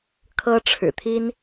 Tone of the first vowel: high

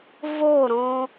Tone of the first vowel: falling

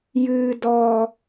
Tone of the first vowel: high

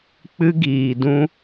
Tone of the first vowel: high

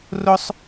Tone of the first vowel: high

